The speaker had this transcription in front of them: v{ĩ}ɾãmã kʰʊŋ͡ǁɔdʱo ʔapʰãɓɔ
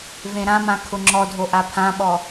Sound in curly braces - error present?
yes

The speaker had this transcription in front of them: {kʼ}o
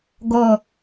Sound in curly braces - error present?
yes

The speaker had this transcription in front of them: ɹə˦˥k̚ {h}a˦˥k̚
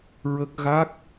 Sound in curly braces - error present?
yes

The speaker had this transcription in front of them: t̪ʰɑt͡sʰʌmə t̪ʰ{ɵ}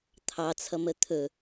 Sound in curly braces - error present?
no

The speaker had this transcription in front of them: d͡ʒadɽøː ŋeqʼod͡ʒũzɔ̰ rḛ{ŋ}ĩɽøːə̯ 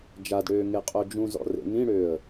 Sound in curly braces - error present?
no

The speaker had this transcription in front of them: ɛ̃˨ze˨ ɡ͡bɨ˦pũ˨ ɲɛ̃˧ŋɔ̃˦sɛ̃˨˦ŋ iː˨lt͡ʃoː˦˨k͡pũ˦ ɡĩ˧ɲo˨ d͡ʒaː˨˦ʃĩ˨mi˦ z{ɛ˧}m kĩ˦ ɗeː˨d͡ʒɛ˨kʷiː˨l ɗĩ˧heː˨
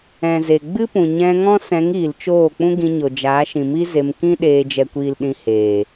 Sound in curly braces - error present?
yes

